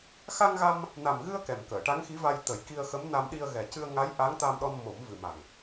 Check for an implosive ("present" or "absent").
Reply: present